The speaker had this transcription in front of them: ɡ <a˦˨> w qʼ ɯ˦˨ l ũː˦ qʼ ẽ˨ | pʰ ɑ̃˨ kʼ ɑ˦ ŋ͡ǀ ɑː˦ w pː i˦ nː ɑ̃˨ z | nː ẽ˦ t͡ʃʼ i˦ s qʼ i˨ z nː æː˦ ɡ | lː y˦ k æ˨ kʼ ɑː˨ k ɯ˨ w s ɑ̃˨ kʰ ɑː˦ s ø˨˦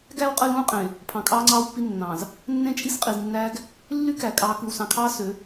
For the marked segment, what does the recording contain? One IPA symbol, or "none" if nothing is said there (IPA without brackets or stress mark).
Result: æ˦˨